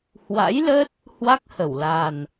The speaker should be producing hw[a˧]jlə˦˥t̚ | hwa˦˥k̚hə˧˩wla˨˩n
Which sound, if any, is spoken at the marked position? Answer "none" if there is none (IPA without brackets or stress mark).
a̰˧˥